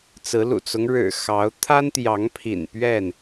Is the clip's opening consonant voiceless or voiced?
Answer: voiceless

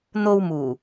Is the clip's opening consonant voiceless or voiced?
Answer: voiced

